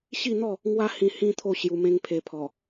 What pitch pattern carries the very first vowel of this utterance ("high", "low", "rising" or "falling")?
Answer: falling